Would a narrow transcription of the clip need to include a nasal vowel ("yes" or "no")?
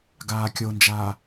no